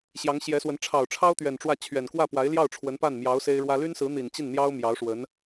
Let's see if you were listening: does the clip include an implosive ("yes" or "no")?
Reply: no